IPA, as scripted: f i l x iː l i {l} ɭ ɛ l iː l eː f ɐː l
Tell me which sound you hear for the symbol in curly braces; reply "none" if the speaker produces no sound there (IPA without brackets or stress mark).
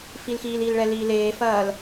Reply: l